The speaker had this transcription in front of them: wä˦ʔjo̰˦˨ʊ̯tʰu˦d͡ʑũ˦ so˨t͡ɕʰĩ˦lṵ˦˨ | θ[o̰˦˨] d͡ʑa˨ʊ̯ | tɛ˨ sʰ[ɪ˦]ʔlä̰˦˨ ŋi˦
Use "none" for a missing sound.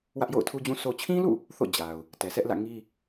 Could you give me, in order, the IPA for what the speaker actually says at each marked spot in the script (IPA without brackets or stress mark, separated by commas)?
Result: o̰˦˨, ɛ˦